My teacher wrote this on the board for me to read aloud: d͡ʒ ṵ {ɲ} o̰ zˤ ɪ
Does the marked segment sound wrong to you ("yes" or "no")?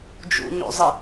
no